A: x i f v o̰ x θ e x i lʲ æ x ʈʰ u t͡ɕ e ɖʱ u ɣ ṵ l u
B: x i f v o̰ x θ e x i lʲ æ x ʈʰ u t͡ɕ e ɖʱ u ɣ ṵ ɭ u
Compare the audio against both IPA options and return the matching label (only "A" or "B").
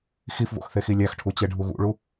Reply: B